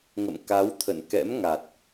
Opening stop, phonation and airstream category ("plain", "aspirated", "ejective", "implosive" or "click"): plain